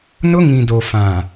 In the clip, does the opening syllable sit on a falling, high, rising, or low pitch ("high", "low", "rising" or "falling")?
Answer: high